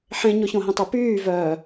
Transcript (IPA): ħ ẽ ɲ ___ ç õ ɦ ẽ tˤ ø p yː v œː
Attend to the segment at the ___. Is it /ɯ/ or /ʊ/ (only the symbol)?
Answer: ʊ